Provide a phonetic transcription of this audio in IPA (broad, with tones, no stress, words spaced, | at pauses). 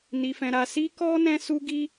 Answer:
ni˧fɛ̃˧ɾa˧ si˦ kɔ˦ nɛ̃˦su˦ɡi˦